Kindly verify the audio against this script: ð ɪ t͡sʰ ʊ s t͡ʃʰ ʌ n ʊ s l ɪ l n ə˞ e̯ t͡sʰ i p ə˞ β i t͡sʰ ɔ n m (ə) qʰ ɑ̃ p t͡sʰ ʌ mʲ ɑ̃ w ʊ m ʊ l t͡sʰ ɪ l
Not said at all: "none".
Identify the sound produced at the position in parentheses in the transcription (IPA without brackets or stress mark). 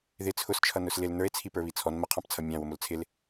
ə